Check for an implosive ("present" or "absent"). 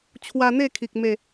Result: absent